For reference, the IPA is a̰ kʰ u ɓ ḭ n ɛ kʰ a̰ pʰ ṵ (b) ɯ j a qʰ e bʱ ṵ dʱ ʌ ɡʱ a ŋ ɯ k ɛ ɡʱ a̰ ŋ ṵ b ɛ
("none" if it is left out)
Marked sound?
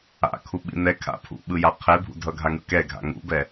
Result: ɓ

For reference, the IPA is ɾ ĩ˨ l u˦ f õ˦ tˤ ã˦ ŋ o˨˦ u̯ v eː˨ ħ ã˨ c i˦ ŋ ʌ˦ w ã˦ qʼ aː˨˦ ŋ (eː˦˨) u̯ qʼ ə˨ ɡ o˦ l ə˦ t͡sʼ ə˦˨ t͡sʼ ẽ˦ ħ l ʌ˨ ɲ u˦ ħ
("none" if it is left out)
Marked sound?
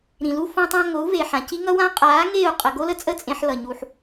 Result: eː˦˨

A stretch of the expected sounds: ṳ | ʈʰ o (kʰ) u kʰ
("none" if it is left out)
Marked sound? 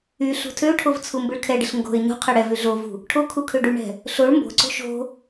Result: kʰ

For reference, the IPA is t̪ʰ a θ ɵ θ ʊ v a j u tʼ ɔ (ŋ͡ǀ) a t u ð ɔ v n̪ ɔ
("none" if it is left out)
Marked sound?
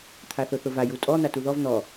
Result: n̪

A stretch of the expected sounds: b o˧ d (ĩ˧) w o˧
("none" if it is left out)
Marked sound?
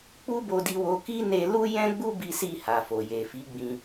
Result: i˧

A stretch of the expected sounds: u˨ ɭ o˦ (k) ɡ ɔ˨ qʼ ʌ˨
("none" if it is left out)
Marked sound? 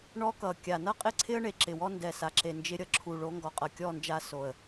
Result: ŋ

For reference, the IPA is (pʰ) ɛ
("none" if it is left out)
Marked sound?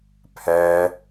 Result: pʰ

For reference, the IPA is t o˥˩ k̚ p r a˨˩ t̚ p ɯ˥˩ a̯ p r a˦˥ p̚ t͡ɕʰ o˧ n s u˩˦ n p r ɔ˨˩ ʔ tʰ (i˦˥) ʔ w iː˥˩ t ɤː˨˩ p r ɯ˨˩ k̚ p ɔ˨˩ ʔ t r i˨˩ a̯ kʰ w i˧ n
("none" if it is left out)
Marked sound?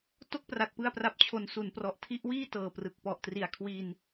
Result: i˦˥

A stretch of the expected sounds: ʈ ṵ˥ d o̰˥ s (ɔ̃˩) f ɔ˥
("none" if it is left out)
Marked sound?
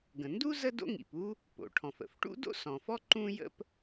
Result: ɔ̃˩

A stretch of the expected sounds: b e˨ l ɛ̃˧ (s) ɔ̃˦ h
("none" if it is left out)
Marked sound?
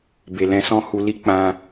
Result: s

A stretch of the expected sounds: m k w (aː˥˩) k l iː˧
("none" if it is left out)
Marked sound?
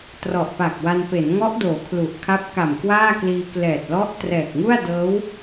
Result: aː˥˩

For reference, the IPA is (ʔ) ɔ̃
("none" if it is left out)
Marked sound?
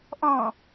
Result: ʔ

